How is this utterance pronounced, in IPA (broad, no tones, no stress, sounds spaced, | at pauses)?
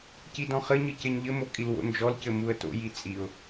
c i d ɔ̃ χ ɘ ɲ ɨ c e ɲ ʎ ɘ m o kʼ i l w o̰ n d͡ʒ ɔ l c ɘ m u ə̯ t o̰ j i t͡sʼ i ʊ̯